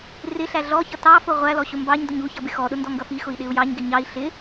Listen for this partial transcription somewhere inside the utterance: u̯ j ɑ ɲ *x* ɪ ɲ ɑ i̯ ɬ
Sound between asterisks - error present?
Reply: yes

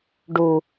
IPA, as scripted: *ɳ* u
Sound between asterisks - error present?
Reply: yes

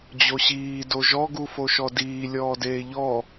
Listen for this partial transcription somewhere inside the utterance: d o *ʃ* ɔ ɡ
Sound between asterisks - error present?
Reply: yes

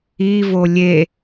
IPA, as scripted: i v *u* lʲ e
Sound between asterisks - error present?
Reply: yes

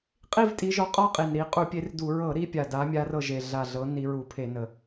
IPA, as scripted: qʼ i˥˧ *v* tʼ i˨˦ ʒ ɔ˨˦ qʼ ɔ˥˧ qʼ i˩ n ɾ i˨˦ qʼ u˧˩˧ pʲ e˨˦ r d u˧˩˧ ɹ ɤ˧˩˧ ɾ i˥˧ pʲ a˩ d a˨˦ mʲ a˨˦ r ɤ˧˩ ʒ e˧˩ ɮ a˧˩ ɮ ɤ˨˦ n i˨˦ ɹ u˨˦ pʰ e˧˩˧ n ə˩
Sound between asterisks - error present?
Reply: no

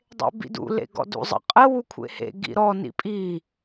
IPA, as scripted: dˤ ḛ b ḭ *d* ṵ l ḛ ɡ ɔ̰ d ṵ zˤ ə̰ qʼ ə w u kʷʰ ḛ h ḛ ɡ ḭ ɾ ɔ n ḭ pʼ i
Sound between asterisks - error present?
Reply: no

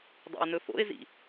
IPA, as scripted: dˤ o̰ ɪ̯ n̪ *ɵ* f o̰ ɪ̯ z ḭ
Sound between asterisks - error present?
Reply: no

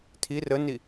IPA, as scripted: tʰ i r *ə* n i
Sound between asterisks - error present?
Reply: no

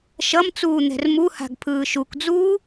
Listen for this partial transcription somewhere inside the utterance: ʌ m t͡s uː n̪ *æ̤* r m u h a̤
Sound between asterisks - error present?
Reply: yes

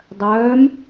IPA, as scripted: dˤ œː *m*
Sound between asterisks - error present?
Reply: no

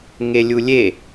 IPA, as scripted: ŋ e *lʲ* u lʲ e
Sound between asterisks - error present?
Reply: no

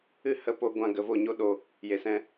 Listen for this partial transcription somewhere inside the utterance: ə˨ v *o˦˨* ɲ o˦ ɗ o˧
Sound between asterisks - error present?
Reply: no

